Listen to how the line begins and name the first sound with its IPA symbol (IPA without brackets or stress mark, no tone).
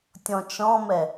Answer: tʲ